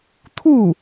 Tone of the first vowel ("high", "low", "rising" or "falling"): falling